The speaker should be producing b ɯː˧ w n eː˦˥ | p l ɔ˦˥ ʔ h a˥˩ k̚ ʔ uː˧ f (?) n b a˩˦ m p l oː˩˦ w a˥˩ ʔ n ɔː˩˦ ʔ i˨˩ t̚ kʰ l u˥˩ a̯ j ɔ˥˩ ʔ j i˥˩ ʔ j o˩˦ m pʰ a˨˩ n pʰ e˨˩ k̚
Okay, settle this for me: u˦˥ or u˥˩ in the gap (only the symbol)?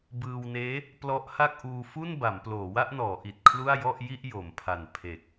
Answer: u˥˩